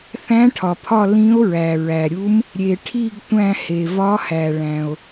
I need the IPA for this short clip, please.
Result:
θ æ̃˧˥ ʈʰ ɒ˩ pʰ ɒ˦˨ l ĩ˧˥ o̯ ɹ æ˩ ɹ æ˩ ɾʲ u˧˥ m | ɾʲ e˩ ʈʰ i˦˨ ɡ tʷ æ̃˦˨ h e˩ v ɒ˧˥ h æ˩ ɭ æ̃˩ o̯

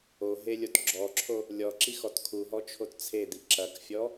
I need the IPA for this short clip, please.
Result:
o ɦ e lʲ o t ɡ͡ǁ ɔ ǁʰ o | lʲ ɔ ǁ i x ɔ t kʰ u ɦ ɔ t͡ʃʰ o t t͡sʰ e d̪ i ǁ ɐ k fʲ ɔ

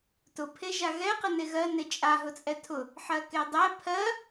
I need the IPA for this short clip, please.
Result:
t ʊ pʰ e ʒ a ɣ ɛ q ə n e ɣ ɜ n e t͡ʃʼ a ɦ ʊ t͡sʼ ɛ tʰ ʊ | ħ ɜ k e dˤ ɛ pʰ ɜ

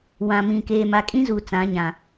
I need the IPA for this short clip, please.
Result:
w ã˨ m ĩ˨ k eː˨ m a˨ kʼ ĩ˦ z uː˨ t͡s ã˨˦ ɲ ã˨

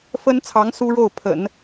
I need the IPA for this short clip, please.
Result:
f ə˥ n t͡sʰ ɑ˧˥ ŋ s u˥ ɻ o˥˩ ʊ̯ pʰ ə̰˨˩˦ n

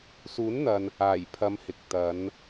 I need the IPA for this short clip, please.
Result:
s uː˨˥ n n̪ ɐ˨ n | aː˨˩ j pʰ ɐ˨˧ m h ɪ˨ k̚ t̪ ɐ˨˧ n

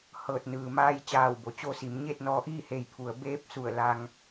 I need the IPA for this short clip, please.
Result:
h ɤː˧˩ t̚ n ɯː˩ m aː˧ j t͡ɕ aː˧˩ w b o˩ t͡ɕ o˧ s i˩˧ m ɲ eː˥˨ t̚ n ɔː˧ ʔ iː˥˨ h eː˧˩ j pʰ u˩˧ ə̯ b eː˧˥ p̚ s u˧˩ ə̯ l a˧ ŋ

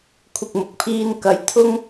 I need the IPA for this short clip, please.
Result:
kʷʰ ɪ˨ k̚ m ʊ˨˥ k̚ pʰ iː˧ n k ɐ˨˥ j t̪ʰ ʊ˧ ŋ

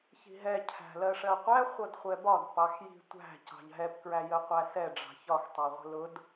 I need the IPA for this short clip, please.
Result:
ç i̤ ɦ ɛ cʰ æ̤ l ɜ ʂ ɜ qʷ æ χʷ ʌ d χʷ ɛ b ɒ d p ɑ x j i̤ tʷ æ̤ c ɑ̤ ʎ ɦ ɛ p k ɹ æ j ə qʷ æ s ɛ ɖ͡ʐ ɑ̤ ç ɒ x tˤ æ ʁʷ ə̤ l ʊ d

